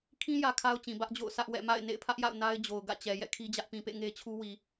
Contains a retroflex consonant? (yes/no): no